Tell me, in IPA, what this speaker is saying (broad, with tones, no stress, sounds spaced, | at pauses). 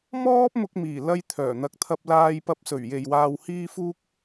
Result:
m ɔː˥ p̚ m ʊ˧ k̚ m iː˨˩ l ɐ˧ j t̪ʰ œː˨˩ n̪ ɐ˧ k̚ t̪ʰ ɐ˧ p̚ l aː˧ j p ɐ˧ p̚ s ɵ˨˩ ɥ j e˨ j w aː˧ w h iː˥ f uː˥ k̚